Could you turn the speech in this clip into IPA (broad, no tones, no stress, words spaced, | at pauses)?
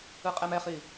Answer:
ɯqʼɛmɛχi